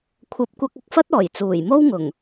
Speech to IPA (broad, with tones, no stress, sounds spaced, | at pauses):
kʷʰ ɐ˨˥ p̚ kʷ ɐ˧ k̚ ɐ˧ k̚ f ɐ˥ t̚ ɔː˨˩ j t͡s uː˨˩ j m o˥ w ŋ ʊ˨˩ ŋ